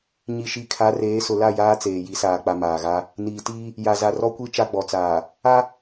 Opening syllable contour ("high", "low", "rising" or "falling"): low